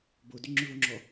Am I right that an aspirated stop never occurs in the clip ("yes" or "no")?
yes